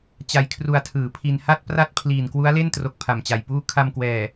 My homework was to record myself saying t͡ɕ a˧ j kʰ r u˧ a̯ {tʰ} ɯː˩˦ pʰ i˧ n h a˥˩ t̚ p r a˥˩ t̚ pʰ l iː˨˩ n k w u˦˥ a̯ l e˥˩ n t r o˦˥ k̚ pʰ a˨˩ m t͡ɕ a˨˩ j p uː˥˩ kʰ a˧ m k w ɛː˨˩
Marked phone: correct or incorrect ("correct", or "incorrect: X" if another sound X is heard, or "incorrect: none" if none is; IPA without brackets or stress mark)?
correct